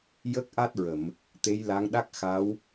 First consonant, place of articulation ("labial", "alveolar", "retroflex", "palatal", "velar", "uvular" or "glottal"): palatal